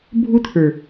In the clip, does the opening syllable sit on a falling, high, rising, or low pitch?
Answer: high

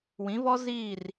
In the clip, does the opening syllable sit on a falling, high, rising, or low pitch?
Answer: rising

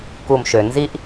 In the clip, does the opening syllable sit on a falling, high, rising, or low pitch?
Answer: low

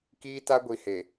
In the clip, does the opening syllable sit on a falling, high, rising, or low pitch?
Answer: high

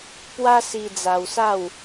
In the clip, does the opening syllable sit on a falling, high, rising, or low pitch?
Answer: high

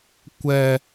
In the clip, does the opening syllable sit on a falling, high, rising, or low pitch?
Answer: high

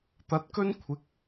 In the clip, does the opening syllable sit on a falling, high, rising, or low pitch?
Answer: rising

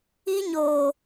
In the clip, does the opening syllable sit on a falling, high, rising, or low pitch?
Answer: high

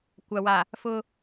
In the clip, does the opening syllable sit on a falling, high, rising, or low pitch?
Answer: low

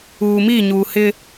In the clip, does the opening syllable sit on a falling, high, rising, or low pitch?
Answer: low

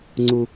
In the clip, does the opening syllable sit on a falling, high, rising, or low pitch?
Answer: low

